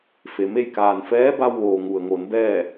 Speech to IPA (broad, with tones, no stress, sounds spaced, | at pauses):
f e˩ m e˥˨ j k aː˩ n f ɛː˧˥ b a˧ w ʋ oː˩ ŋ u˩ ə̯ ŋ o˩˧ n b ɛː˥˨